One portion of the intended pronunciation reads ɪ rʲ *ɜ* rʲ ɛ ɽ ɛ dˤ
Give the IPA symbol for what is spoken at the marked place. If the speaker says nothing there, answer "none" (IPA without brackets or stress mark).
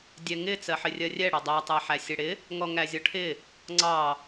ɜ